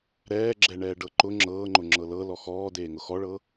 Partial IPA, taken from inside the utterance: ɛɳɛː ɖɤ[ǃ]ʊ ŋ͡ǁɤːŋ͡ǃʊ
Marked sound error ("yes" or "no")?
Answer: no